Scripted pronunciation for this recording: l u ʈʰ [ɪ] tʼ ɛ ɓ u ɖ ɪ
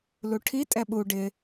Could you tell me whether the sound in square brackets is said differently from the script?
yes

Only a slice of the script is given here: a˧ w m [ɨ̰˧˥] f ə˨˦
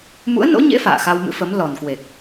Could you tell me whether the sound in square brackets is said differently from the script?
no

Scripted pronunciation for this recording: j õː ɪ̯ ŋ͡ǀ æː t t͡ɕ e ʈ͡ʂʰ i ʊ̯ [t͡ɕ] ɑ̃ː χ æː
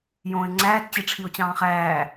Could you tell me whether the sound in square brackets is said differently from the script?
no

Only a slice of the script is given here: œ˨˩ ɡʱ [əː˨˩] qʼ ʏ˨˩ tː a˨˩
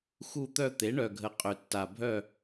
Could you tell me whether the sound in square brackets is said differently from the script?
yes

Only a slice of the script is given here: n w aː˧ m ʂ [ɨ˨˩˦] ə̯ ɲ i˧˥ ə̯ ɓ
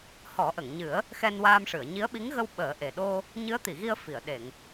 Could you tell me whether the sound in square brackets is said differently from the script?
yes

